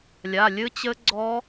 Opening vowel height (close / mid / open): open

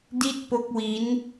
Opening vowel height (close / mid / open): close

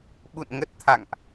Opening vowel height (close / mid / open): close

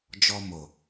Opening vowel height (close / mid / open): mid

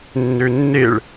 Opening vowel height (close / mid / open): mid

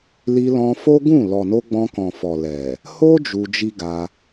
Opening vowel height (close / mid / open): close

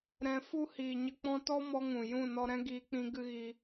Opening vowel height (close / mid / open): mid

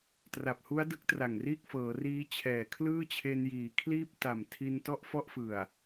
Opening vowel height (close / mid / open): open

